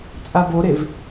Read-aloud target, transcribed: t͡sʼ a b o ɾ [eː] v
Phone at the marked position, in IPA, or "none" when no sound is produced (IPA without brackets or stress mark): e